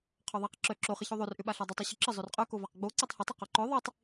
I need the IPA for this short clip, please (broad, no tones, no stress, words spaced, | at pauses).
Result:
qʰɔðˤaq ǁœ ǁoχɪço ðˤørʔʏɓaɬa dˤʊtˤo ɕʊǁə zˤørqʼœkovaq ɡ͡bo ǀœtˤhʊtˤɐ qoǃœ ðˤitˤ